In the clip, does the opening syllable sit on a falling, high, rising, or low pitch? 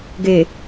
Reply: low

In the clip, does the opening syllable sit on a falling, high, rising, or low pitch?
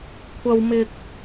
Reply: high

